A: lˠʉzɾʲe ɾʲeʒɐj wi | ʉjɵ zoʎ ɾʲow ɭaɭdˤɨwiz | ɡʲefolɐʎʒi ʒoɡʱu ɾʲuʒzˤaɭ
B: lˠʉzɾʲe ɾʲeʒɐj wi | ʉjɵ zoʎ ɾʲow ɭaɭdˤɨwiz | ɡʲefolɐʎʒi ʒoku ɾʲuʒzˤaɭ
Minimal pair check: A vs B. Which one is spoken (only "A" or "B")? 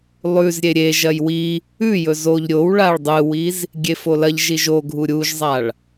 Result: A